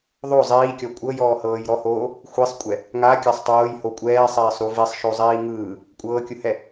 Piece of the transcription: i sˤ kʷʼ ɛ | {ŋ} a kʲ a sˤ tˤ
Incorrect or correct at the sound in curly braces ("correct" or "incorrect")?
correct